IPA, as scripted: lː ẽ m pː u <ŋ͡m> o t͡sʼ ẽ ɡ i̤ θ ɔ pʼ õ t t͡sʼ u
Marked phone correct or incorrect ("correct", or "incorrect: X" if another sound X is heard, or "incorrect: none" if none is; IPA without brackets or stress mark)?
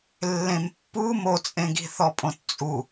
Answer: incorrect: m